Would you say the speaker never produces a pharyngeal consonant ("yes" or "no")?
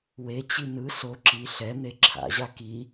yes